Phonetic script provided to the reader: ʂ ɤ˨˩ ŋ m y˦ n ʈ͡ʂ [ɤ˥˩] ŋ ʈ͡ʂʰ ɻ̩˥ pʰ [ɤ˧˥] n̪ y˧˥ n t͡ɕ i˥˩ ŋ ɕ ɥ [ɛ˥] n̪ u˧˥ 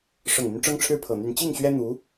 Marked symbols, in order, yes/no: no, no, yes

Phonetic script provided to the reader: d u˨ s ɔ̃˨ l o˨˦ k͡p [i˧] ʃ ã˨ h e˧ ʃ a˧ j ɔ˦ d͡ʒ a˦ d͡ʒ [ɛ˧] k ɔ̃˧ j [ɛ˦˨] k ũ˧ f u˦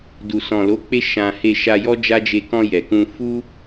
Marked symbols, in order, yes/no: no, no, no

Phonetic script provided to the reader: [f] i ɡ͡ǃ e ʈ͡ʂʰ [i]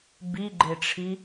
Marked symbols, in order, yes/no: no, yes

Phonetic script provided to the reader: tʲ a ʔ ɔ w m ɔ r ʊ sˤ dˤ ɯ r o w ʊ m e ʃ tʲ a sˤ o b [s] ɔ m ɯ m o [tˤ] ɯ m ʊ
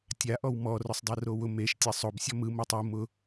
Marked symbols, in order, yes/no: no, yes

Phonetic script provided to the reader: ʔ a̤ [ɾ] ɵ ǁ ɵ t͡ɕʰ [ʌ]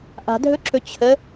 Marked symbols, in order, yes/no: no, no

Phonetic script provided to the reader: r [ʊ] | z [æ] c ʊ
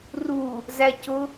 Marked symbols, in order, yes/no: no, yes

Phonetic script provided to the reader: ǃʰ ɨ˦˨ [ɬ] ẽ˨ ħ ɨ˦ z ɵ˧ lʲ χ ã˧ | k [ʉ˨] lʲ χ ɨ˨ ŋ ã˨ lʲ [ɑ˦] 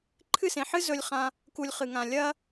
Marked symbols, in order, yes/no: no, no, no

